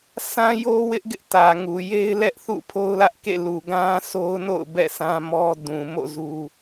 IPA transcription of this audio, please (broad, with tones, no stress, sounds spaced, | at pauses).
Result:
s ã˦ j o˦ w ɪ˦ ʔ ɡ ɪ˦ ʔ t ä˨ ŋ u˨ j e˦ ɪ̯ l ɛ˦ ʔ θ ṵ˦˨ pʰ o˦ ʊ̯ l ä˦ ʔ k ḛ˦˨ l u˨ ɡ ã˦ sʰ o˦ ʊ̯ n o̰˦˨ ʊ̯ b ɛ̰˦˨ sʰ ã˦ m ɔ˦ d ũ˨ m o̰˦˨ z u˦